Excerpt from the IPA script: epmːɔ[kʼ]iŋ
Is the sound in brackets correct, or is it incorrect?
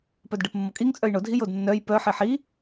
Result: correct